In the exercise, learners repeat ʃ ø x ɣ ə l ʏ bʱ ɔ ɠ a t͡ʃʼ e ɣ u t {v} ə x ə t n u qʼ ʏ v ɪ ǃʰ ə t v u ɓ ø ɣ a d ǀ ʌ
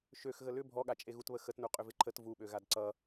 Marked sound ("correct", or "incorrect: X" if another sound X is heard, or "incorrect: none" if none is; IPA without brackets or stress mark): incorrect: β